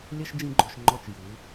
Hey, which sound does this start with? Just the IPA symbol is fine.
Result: lʲ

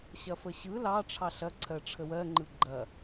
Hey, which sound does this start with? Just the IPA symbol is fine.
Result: ɕ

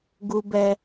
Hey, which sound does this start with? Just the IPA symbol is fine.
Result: ɡ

